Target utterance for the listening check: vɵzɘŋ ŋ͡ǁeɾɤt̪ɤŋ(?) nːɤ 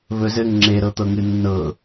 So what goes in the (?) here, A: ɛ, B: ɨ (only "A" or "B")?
B